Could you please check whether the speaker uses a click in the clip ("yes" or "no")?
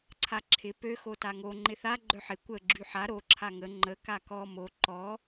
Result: yes